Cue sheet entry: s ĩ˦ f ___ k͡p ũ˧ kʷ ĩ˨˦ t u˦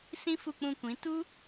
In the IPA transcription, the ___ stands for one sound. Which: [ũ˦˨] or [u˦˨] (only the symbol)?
u˦˨